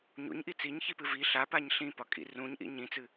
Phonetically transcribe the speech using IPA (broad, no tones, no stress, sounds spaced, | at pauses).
ɲ ṵ ɲ ʔ i t͡s i ɲ ç i p ɨ v i ɬ a p a ɲ ɬ ĩ p ɒ kʼ ḭ r ũ ɲ ʔ ḭ ɲ ĩ t͡s ɨ